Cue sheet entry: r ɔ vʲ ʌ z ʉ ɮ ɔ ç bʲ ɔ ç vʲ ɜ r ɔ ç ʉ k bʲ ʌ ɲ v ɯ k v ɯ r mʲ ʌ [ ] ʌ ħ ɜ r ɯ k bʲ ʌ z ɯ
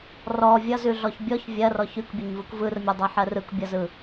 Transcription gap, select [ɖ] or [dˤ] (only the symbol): dˤ